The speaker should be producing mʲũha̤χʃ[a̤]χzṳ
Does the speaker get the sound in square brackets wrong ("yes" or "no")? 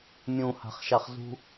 yes